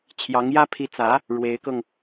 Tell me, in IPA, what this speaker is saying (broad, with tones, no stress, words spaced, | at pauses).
t͡ɕʰjɑ˧˥ŋjä˥ pʰi˧˥t͡sä˧˥ | ɻwe˧˥ɪ̯kɤ˧ŋ